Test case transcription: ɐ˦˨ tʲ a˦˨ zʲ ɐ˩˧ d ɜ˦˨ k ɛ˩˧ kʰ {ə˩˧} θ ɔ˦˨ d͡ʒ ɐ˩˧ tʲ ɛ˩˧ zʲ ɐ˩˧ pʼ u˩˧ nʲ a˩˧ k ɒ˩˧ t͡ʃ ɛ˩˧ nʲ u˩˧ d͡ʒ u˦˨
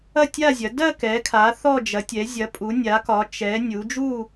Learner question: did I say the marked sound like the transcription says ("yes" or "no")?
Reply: no